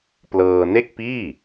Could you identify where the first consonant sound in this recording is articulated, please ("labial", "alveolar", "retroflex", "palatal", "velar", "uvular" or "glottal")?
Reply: labial